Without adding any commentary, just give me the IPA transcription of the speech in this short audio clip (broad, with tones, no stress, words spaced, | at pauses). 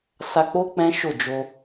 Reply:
sa˧k͡po˦ k͡pɛ̃˦ʃo˦˨ d͡ʒo˧